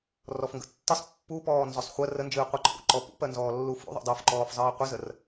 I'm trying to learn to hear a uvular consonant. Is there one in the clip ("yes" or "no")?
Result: yes